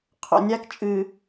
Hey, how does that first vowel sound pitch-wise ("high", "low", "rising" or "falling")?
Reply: low